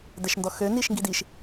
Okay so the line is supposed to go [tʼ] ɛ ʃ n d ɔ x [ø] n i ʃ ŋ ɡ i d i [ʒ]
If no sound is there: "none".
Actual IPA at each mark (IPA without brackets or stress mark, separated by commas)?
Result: d, ø, ʃ